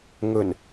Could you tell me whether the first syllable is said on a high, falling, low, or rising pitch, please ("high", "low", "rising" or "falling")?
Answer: low